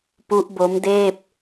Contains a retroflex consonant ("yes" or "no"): no